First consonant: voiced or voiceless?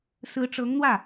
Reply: voiceless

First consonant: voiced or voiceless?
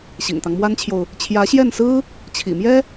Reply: voiceless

